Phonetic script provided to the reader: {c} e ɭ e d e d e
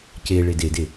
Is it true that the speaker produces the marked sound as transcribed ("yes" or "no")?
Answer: yes